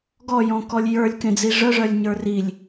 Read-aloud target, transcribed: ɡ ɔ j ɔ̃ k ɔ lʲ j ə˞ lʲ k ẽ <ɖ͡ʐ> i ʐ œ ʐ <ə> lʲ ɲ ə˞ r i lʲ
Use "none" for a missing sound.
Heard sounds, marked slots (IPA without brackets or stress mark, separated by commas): d͡z, œ